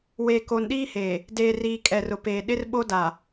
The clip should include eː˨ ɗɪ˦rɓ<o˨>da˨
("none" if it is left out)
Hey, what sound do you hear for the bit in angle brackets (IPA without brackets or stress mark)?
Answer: o˦